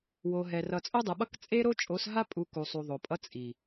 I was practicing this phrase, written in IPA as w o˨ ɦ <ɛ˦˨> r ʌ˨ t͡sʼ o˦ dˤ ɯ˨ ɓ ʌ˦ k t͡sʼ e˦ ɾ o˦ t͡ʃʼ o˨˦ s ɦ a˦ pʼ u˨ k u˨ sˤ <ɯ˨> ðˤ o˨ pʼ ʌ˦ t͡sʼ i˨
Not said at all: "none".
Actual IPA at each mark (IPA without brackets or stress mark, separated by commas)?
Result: ɛ˨, u˨